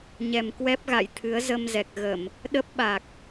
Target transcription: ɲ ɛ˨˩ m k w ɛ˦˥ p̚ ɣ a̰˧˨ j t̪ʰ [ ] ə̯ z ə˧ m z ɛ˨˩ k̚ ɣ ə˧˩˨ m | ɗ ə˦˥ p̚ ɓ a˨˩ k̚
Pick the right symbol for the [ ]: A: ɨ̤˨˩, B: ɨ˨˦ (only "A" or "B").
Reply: B